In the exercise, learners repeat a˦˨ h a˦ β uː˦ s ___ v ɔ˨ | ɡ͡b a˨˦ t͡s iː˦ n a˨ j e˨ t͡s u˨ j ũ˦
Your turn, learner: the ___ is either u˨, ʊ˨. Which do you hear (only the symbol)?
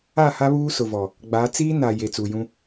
ʊ˨